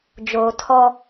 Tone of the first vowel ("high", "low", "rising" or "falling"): low